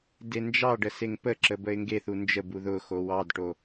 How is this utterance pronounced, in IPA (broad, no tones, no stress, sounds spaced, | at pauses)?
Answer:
d e n d͡ʒ ɑ ɖ ə s e ŋ p ə ǁ ə b ə ɪ̯ ŋ ɡ e θ u n d͡ʒ ə b u ð ʊ x o w ɑ d ʈ o